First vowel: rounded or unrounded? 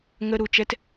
unrounded